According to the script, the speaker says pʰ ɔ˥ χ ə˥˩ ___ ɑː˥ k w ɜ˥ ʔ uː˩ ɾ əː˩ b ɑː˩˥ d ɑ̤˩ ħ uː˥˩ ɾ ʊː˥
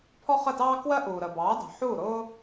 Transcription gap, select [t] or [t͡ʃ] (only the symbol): t